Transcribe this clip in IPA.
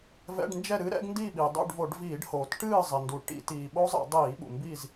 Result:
v ɛ̰˧˥˧ ɖ n d͡ʒ ɛ˥˨ ɾ ɨ˦˥ ɾ ɛ̰˦˥ ɡ n d i˥˨ ɓ i˩ dˤ ṵ˥˨ ɖ v o˧˩˧ ɖ v iː˧˩˧ ɖ h oː˩ t ʈ ɨː˥˨ zˤ ɪ˩ n d u˩ ʈ ḭ˧˩˧ t iː˩ ɓ o˦˥ zˤ ɛ̰˧˩˧ dˤ iː˧˩˧ ɓ ṵ˩ m b i˥˨ z

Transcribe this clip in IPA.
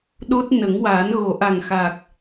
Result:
ɗ o˦˥ t̚ n ə˨˩˦ ŋ w aː˨˩˦ n ɣ o˨˩˦ ʔ a˨˩ ŋ x aː˨˩ k̚

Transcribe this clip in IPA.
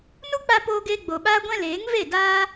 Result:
n u˦ k͡p a˧ p oː˧ ɡ eː˧ ɡ͡b o˨ ɓ aː˦ ɡʷ ɛ̃˦ l eː˨˦ ŋ v e˦˨ d aː˦

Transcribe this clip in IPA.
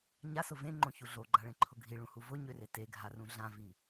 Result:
ɲ a s ʊ v ẽ ŋ͡ǃ õ ç u ɮ o ɡ͡ǃ a ɭ ẽ ǃʰ ʊ ɡʱ i ɭ ũ h u v ʊ ɲ ø r e t e ɡʱ a r ũ ɮ ã v i

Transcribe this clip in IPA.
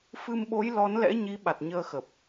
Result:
f ɨ˧ m ɓ o˨˦ j l ɔ˨˦ n l ɛ̰˧˥ ɲ i˨˦ ɓ a˨˩ t̚ ɲ əː˧ x ə˨˩ p̚

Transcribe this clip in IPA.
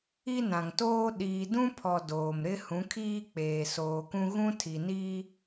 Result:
i˦ n ã˨ ŋ t oː˦ ɗ iː˨ d ũ˦ pʰ ɔ˨ d oː˨ m ɾ ɪ˦ h ũ˨˦ kʰ iː˦ k͡p eː˨ s oː˨ k ũ˦ ɣ ũ˦ tʰ i˨ n iː˦

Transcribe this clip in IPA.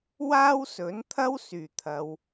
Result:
w aː˥ w s ɵ˨˥ n t̪ʰ ɐ˥ w s yː˨˩ t̪ʰ ɐ˨˧ w

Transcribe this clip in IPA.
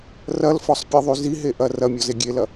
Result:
r ɐ l f ɔ sˤ pʲ e ðˤ y z i ɦ e ʔ ɐ r ɐ mʲ ɔ z e ɡʲ e l ɐ

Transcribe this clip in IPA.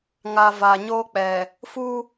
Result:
ŋ a˨ v aː˨ ɲ oː˦ k͡p ɛ˨ | f u˦

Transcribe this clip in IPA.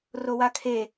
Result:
r o w a kʰ e

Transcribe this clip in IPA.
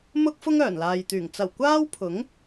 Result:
m ʊ˧ k̚ f ʊ˧ ŋ œː˨˩ n l aː˨ j t̪ yː˨˩ ŋ t͡s ɐ˨˩ w kʷ aː˥ w pʰ ʊ˨˥ ŋ

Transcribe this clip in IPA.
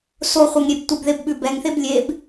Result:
s o χʷ e ŋ ɾʲ e b tʷ ə b ð e b ɓ ʉ b ɛ ŋ θ e b lʲ e b

